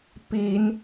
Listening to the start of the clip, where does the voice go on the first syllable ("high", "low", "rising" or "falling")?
rising